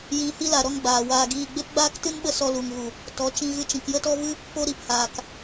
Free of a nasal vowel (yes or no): no